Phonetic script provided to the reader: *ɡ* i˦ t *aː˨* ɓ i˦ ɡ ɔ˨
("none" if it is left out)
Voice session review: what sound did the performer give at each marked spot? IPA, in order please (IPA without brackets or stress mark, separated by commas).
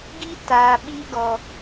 ɡ, aː˨